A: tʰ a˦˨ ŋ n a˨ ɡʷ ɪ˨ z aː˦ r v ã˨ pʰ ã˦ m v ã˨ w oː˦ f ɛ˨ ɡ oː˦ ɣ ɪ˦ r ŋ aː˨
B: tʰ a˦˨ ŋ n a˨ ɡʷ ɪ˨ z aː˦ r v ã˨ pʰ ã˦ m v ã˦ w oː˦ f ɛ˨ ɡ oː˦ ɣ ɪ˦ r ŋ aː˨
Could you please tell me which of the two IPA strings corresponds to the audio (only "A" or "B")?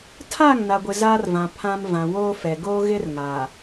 A